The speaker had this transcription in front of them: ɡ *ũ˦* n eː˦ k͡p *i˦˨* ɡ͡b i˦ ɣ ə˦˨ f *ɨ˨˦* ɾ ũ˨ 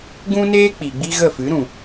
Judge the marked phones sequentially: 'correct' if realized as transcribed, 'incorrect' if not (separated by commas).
correct, incorrect, correct